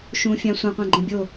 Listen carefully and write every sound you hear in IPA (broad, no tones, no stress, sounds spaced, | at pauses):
ʃ ũ fʲ ã sʷ ã qʷ ã ɡ͡ǃ ẽ bʲ o